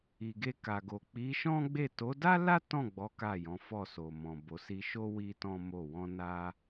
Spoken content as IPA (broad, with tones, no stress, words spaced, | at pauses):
i˨ɡe˧ka˨ɡo˨ k͡pi˨˦ ʃɔ̃˦ɡ͡be˦˨ to˨˦da˦la˦ tɔ̃˦˨ɡ͡bɔ˨˦ ka˦˨jɔ̃˨˦fɔ˦˨ so˨mɔ̃˨ bo˨˦ si˧ʃo˦ wi˦tɔ̃˦ mo˦˨ wɔ̃˧ na˦